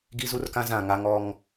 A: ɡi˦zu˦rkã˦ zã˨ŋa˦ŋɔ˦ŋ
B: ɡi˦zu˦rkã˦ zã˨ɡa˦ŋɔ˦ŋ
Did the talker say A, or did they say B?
A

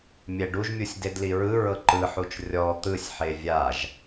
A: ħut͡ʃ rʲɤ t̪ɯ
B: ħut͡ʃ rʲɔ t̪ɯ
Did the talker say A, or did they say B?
B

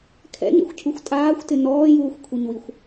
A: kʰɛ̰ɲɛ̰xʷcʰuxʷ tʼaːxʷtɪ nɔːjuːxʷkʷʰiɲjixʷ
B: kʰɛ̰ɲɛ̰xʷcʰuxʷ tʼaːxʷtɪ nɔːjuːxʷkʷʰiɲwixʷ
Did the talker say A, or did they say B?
B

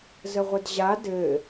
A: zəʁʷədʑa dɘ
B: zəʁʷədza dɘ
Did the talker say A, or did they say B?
A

